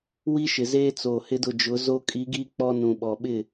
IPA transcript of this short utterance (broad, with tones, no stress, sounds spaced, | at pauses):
w i˦ ʃ ɪ˨ z eː˦ t͡s oː˨ h ɪ˦ d ʊ˦˨ d͡ʒ ʊ˨˦ z o˦ kʼ i˨˦ ɡ iː˦ k͡p ɔ˦ n ũ˨ ɓ ɔ˨ ɓ ɪ˦˨